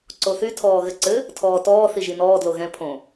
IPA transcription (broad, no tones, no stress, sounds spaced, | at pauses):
ǀ o θ y tʰ ɔː ɣ ɘ ǀ ɘ | tʰ ɔː t ɔː θ i ʒ i n ɔː d l o ɣ ɛ̃ pʰ õ